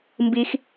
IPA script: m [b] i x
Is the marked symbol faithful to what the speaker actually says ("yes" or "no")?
yes